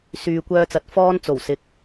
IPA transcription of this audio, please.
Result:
s yː˨ kʷ œː˧ t͡s ɐ˨ t̚ f ɔː˥ n t͡s o˨˩ w s ɪ˨˥ k̚

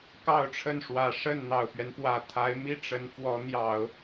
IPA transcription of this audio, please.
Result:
k ɑ˥˧ ʊ̯ ʈ͡ʂʰ ə˥˩ n ʂ w ä˨˩ ʂ ə˥˩ n n̪ ɑ˨˩ ʊ̯ p ɥ ɛ˦ n p w ä˨˩ t̪ʰ a˧˥ ɪ̯ m i˥˩ ʈ͡ʂ ə˧˥ n f w ɔ˧˥ n̪ j ɑ˨˩˦ ʊ̯

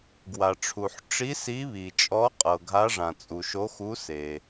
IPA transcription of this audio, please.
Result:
ɡ w a˩ ʈ͡ʂʰ u˩ ħ ʈ͡ʂ i˧˥ s i˧˥ β i˩ t͡ʃʼ ɔ˧˥ qʼ ɤ˩ ɡʱ a˧˥ ʐ ã˩ t͡sʼ u˩ ʃ o˧˥ x u˧˥ s e˩

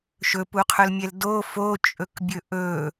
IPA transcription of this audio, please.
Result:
ʃ ɵ p u qʰ ɵ l mʲ ɛ l d o f o t͡ʃʼ ɵ k bʲ ɵ ʔ ɵ

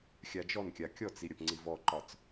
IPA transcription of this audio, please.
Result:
xʲ a d͡ʒ ɔ n kʲ a kʲ ɔ t͡s i ɾʲ ɐ p ŋ͡ǀ i v ɔ ǃ ɒ t͡s

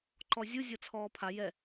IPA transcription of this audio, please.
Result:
ǃ ɔ zʲ u zʲ ɤ t͡sʰ ɔː pʰ a j ɛ

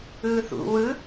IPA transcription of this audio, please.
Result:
ɯː θ ṵ w ɯ

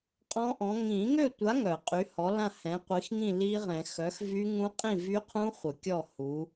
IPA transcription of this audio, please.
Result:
qʼ ɔ̃˦˥ ʔ ɔ̃˨˥ ŋ ĩ˨˩˦ ŋ ø˥˨ tʷ a˨˥ ŋ œ˨˩˦ qʼ y˨˥ h ɔ˨˥ l ã˥˨ h ɛ̃˨˥ qʷ i˨˥ x ŋ ĩ˥˨ l i˦˥ ʁ ɛ̃˨˩˦ x œ˨˥ x v y˦˥ ŋ ũ˦˥ qʼ ĩ˥˨ v y˦˥ qʰ ũ˦˥ χʷ ə˨˩˦ kʲ ɔ˥˨ h u˨˥

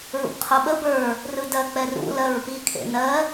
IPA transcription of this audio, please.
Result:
ɹ ṵ b qʰ o ɓ ə b ə˞ | r ɯ d ɜ k͡p ɛ r ṵ l ɜ ɹ p i kʰ ḛ n ɜ

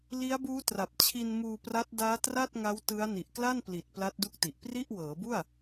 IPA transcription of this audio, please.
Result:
l i˦˥ a̯ b uː˦˥ t r a˨˩ p̚ t͡ɕʰ i˧ n m uː˧ p r a˦˥ t̚ d aː˦˥ t r a˥˩ t̚ ŋ a˦˥ w t ɯ˦˥ a̯ n i˨˩ ʔ k l a˥˩ n p l i˨˩ t̚ p l a˦˥ t̚ d u˦˥ k̚ t i˨˩ ʔ p r i˥˩ ʔ w ɤː˩˦ b u˥˩ a̯

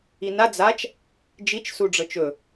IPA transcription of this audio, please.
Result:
i n a d͡z a t͡ʃ | d͡ʒ i t͡ʃ s u ɖ͡ʐ ɤ t͡ʃ ɵ

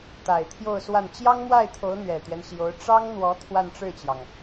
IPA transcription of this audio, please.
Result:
t̪ a˨˩ ɪ̯ t̪ʰ j o˥˧ ʊ̯ s w a˥˩ n t͡ɕ j ɑ˥ ŋ m w a˥˩ ɪ̯ t̪ʰ o˧˥ ʊ̯ n̪ ɥ ɛ˨˩ t̪ ɥ ɛ˦ n ɕ j o˧˥ ʊ̯ ʈ͡ʂ ɑ˥ ŋ n̪ w ɔ˧˥ t̪ʰ w a˥˧ n ʈ͡ʂ ɻ̩˥˩ t͡ɕ j ɑ˩ ŋ

